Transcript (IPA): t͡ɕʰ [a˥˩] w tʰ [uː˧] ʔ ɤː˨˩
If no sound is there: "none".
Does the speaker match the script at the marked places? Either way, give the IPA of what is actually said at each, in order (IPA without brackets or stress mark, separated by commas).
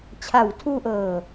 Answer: a˩˦, uː˧